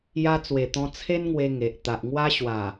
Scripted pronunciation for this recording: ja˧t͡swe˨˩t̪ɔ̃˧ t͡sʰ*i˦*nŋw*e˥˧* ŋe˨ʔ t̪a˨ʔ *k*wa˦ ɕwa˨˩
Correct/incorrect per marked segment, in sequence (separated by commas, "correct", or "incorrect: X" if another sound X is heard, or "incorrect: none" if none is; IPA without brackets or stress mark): incorrect: e˦, incorrect: e˧, incorrect: ŋ